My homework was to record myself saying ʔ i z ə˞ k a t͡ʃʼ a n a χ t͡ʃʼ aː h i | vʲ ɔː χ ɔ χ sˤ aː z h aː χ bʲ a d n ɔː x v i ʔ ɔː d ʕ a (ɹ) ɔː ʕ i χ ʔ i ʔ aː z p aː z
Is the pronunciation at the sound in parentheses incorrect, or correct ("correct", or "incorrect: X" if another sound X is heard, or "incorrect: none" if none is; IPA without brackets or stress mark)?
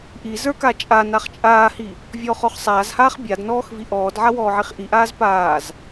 incorrect: w